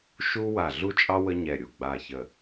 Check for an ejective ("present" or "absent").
present